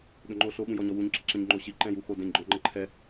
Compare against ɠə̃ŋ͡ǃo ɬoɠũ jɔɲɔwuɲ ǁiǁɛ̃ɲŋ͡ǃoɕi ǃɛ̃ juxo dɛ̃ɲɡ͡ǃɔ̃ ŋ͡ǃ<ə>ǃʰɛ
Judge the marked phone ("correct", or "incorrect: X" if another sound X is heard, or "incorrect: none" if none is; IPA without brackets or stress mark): correct